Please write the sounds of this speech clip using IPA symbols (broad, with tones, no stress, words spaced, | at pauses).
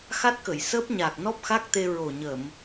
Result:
xa˦˥t̚kə˨˩˨jsəː˦˥p̚ ɲaː˨˩k̚nɔ˦˥p̚ xa˦˥k̚t̪e˧ ɹo˨˩ɲə˨˩˨m